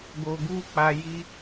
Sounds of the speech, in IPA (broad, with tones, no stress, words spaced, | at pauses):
ɡo˨ɡu˧ k͡pa˨ji˧